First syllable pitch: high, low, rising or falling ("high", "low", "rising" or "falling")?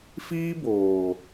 high